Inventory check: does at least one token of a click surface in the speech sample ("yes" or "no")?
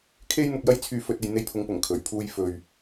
no